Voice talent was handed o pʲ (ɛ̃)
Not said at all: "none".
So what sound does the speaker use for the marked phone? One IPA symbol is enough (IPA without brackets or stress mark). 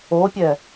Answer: ɛ